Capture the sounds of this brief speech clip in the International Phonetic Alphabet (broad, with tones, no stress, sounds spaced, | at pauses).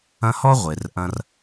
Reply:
ɐ̃˦ h ɔ˥ ʁʷ e˨ r ʔ ɐ̃˥ r